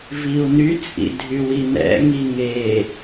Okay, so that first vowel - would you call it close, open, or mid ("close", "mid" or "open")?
close